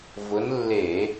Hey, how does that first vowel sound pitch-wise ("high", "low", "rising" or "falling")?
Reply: rising